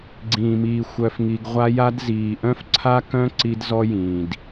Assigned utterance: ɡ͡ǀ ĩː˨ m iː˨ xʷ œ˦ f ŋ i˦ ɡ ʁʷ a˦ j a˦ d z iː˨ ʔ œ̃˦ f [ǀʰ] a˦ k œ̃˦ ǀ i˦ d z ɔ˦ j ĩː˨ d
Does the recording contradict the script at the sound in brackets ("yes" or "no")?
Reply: no